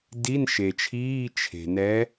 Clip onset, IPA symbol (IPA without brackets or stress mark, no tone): d